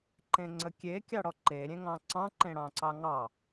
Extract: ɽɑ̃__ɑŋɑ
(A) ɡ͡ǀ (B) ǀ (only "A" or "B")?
B